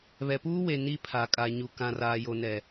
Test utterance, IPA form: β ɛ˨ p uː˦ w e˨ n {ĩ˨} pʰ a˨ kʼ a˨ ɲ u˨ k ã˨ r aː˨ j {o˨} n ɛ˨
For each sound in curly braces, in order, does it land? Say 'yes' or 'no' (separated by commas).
no, yes